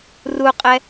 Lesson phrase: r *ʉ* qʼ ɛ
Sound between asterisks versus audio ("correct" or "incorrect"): incorrect